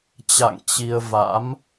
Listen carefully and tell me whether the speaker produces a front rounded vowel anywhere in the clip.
no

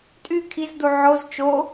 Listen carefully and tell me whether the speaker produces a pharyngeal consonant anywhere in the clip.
yes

